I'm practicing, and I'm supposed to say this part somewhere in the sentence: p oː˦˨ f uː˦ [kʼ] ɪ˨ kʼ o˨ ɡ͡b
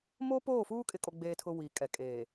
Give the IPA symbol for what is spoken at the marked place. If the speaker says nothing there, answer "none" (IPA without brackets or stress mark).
kʼ